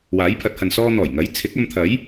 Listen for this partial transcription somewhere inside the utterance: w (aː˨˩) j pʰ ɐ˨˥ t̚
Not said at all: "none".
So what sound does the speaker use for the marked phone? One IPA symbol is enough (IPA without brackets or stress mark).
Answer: aː˨˥